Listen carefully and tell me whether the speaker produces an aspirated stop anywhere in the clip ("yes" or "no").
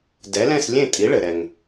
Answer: no